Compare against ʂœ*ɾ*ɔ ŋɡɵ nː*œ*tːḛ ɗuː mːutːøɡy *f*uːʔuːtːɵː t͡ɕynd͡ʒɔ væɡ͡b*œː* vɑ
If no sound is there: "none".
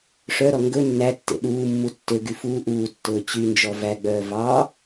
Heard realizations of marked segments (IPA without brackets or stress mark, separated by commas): ɾ, æ, f, œː